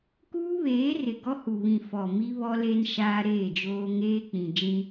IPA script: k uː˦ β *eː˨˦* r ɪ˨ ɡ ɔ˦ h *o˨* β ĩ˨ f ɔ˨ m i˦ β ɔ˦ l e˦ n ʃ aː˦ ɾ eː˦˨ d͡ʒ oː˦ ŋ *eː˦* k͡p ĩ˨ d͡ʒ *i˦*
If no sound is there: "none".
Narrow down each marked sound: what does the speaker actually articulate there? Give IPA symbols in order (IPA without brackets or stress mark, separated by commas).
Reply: eː˨˦, u˨, eː˦, ĩ˦